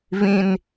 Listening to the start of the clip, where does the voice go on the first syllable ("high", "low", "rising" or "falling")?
high